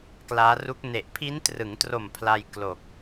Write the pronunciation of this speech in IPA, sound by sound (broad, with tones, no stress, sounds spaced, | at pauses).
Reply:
k l aː˦˥ r u˦˥ k̚ n e˨˩ ʔ pʰ i˦˥ n t r ɯ˩˦ ŋ t r o˨˩ m pʰ l a˧ j k l o˨˩ k̚